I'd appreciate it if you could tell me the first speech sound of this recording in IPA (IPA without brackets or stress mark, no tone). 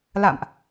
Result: l